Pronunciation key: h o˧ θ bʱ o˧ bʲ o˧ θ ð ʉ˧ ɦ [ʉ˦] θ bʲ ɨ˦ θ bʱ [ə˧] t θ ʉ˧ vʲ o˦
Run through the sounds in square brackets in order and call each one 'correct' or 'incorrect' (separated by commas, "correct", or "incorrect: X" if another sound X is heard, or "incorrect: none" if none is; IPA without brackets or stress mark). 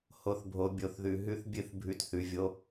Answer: correct, incorrect: ʉ˧